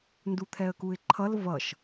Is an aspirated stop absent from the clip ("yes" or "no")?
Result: no